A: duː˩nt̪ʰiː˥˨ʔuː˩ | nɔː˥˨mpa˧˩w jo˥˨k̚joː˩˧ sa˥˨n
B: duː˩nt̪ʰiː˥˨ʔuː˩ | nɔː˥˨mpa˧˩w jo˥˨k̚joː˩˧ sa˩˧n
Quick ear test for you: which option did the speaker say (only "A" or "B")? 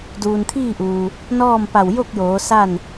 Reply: A